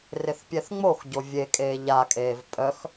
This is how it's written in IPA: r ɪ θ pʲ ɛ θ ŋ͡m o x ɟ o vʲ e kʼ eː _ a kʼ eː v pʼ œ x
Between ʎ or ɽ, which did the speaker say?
ʎ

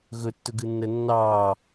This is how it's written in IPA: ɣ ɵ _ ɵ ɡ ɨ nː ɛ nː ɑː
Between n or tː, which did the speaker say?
tː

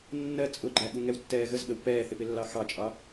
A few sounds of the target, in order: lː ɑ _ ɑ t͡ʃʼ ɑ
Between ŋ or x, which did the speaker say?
x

